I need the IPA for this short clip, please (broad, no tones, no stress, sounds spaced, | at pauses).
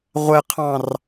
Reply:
ʁʷ ɛ qʰ ɑ̃ r